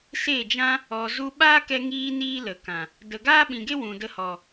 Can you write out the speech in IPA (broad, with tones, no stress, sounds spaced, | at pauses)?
s e˦˨ d͡ʒ ã˦ | ɔ˨ z u˧ ɓ aː˦ k ɛ˧ ŋ iː˧ n iː˦ l ə˨ k ã˨ | d ə˨ ɡ aː˦ ɓ ĩ˨ ɡ e˦ w ũ˨ d ə˧ h ɔ˨